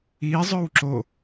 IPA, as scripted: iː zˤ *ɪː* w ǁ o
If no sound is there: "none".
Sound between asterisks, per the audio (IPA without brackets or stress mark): ʏː